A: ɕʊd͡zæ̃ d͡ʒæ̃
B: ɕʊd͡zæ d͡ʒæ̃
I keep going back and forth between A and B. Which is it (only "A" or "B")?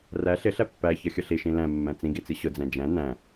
A